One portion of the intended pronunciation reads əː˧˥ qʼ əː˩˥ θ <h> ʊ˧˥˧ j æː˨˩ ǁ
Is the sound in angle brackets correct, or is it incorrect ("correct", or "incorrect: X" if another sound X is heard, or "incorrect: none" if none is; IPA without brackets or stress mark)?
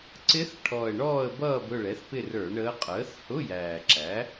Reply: correct